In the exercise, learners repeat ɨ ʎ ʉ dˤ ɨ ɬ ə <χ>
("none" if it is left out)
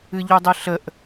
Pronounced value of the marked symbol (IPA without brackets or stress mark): ʔ